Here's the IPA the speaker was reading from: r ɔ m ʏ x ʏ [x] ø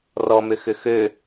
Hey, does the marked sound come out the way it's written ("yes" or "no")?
yes